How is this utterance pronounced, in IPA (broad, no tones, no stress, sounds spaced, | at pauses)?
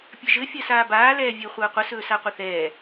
pʲ ɘ ʒ ɘ fʲ ɜ s aː b aː l ɛː vʲ e χʷ əː qʷ ə s ɵː s a qʷ ɘ θ ɛː